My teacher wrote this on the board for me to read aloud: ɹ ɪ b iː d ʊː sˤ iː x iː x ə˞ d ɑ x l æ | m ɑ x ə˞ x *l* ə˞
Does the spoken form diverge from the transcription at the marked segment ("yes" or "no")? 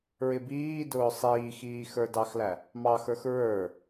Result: yes